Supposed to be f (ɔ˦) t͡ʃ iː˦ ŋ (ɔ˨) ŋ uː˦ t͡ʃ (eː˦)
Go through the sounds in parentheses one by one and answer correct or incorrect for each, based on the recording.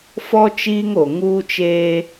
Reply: correct, incorrect: o˨, correct

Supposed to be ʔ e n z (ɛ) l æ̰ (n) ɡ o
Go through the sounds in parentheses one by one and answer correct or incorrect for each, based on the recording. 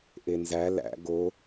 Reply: incorrect: æ, incorrect: none

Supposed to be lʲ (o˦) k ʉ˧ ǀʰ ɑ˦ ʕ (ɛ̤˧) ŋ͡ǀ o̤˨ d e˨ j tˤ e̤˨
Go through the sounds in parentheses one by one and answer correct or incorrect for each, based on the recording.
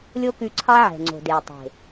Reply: correct, incorrect: ɛ̤˨

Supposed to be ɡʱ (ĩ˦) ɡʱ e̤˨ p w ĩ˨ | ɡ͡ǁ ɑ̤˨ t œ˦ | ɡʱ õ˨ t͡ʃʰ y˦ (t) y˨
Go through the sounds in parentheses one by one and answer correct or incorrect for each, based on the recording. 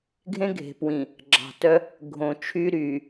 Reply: incorrect: ẽ˦, incorrect: ɾ

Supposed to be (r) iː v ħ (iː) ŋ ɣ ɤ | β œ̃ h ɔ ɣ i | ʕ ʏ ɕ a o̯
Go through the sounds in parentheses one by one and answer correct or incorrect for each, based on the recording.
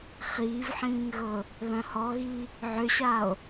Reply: incorrect: χ, incorrect: ĩː

